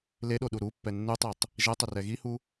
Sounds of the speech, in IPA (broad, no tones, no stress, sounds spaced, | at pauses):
l e ɗ o ɗ u ɾ u pː ɛ nː u tˤ i tˤ | ʒ ɛ tˤ ɛ r ɛ ɣ i h u